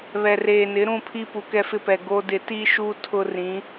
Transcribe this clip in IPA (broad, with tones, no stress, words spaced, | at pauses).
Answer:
βɛ˨reː˨nɪ˨˦ ɾũ˦˨pʰi˦ pu˨kɛ˦fɪ˦pɛ˨ ɡo˦dɪ˦ ti˦ʃu˦ tʰʊ˦rĩ˨˦